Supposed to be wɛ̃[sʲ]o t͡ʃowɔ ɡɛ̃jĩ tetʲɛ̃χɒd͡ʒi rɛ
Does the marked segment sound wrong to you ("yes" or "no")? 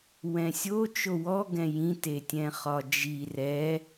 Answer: no